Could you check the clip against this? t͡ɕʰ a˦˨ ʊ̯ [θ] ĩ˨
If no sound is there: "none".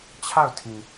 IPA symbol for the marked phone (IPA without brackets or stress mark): tʰ